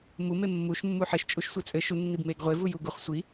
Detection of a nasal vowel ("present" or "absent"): absent